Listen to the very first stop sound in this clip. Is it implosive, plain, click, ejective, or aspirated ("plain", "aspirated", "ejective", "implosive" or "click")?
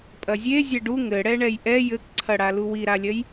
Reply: ejective